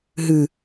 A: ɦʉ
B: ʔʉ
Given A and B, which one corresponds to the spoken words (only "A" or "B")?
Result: A